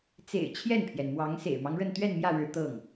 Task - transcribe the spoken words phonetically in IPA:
t͡s ḛ˨˩ ɪ̯ t͡ɕʰ j ɛ˥˩ n pʰ j ɛ˩ n m w ɑ˧˥ ŋ s ḛ˨˩ ɪ̯ m ɑ˦ ŋ ɻ ə˥˧ n t̪ ɥ ɛ˥˧ n m j ä˥˩ ɻ ɻ̩˧˥ t̪ ɤ˥˩ ŋ

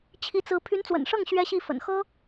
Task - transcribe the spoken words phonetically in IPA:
t͡ɕʰ i˧˥ t͡s ɹ̩˧˥ pʰ y˧˥ n t͡s w ə̰˨˩ n ʂ ɤ˥˩ ŋ ɕ ɥ ɛ˥ ɕ i˥˩ f ə̰˨˩ n x ɤ˥

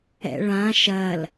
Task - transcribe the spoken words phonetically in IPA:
ɛ̰ ɭ ã ʃ ɐ l

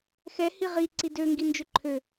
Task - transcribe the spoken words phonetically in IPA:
x ɛ h i ʁ i ǀ i d ø ŋ ɡ i n d͡ʒ ø ǃʰ ø

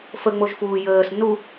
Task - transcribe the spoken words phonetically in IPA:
f ə ŋ͡m o ʒ f uː j əː s n u

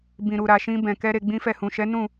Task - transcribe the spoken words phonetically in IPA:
b ĩ˨ ɾ u˨ ɾ a˨ ʃ ĩ˧ b ɛ̃˨ k ɛ˧ ɾ e˧ ɡ͡b ĩ˦ f ɛ˦˨ h ũ˨ ʃ ɛ˨˦ n ũ˦˨

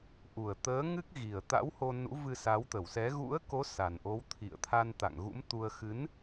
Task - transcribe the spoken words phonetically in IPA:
ʔ u˨˩ ə̯ t̪ əː˨˦ ŋ ɨ˦˥ k̚ ɣ i˨˩ ə̯ t̪ a̰˧˥ w h o˧ n ṵ˧˥ v ɨ˧ s a˨˦ w t̪ ə˧˩ w s ɛ˨˦ ɣ ṵ˧˥ ə̯ k o˨˦ s a˨˩ n ʔ o˨˦ w t̪ʰ ḭ˧˨ ə̯ t̪ʰ a˧ n t̪ a̰˧˨ ŋ ɣ ṵ˧˥ m t̪ u˧ ə̯ x ɨ˨˦ n

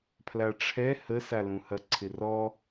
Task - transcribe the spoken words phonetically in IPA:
pʰ l a ʈ͡ʂʰ ɛ h ə s a l ũ h ɐ ǀʰ ɪ r ɔ

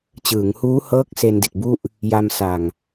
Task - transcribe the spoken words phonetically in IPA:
t͡ɕ ɯː˩˦ ŋ h uː˦˥ h ɤː˦˥ k̚ s e˧ n d i˨˩ t̚ b u˥˩ ʔ | j a˧ m s a˨˩ ŋ

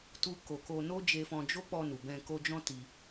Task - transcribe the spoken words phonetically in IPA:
t u˦ k o˧ k o˧ n o˦ d͡ʒ e˧ f ɔ̃˧ d͡ʒ o˦ k͡p ɔ˧ n u˨ b ɛ̃˧ k o˧ d͡ʒ ɔ̃˦ t i˧

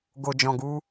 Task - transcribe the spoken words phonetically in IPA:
ɡ o˨ d͡ʒ ɔ̃˨ ɡ u˧

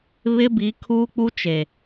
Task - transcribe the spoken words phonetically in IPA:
β ɪ˦ b i˨˦ kʰ uː˦ k͡p u˦ t͡ʃ e˨

